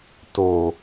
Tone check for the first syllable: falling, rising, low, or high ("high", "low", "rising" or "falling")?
low